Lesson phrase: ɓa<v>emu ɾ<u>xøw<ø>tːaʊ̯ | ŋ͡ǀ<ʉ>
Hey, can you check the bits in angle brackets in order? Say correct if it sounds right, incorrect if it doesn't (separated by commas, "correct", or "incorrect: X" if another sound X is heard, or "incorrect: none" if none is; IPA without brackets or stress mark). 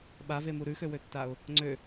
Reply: correct, incorrect: ʉ, correct, incorrect: ø